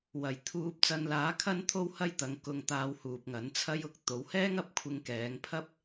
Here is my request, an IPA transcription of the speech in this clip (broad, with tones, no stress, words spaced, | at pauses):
wɐ˨˩j t̪ʰuː˧p̚ t͡sɐ˧nlaː˨˥kʰɐ˥nt̪ʰo˥w hɐ˥j t̪ɐ˨˧ŋkʊ˧ŋt̪aː˧w huː˨p̚ŋɐ˨˥n t͡sʰɐ˥jʊ˨˥k̚ t̪o˨˧whɛː˥ŋɐ˨˥p̚ kʷʰɪ˧ŋkɛː˨˧ŋpʰɐ˥p̚